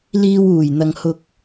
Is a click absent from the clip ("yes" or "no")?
yes